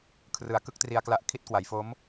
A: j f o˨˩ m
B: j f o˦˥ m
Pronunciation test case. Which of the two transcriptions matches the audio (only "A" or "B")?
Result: B